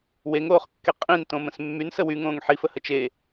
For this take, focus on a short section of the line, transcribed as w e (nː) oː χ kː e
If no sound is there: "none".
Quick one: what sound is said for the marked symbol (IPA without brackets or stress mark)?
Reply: ŋ